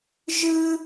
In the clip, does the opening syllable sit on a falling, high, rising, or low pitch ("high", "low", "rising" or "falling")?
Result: high